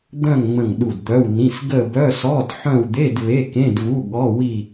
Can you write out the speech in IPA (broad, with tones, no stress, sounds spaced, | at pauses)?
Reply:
d̪ œ̃˦˨ ŋ ŋ͡m ə̃˦˨ ŋ ɗ u˦˨ d d̪ œ˧˥˧ w n ĩ˧˥˧ s ɡ ə˦˨ b œ˧˥˧ s ɔ˧˥˧ d ħ œ̃˦˨ w d̪ e˧˥˧ d β e˧˥˧ k ẽ˧˥˧ d v u˧˥˧ ɠ ɔ˧˥˧ w i˦˨